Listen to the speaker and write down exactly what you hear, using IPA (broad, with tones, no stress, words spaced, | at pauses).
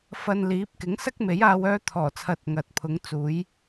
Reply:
fɐ˧nliː˨˥p̚ kɪ˨˥ŋsɐ˥k̚ me˨˥jaː˧w œː˧t̪ʰɔː˨˩t͡sʰɐ˨˥t̚ ŋɐ˨t̚ pʰʊ˨˥ŋ t͡suː˨˥j